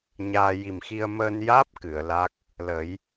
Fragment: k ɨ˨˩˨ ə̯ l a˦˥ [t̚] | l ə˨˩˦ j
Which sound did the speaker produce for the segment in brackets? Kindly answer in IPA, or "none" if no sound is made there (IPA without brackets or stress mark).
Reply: k̚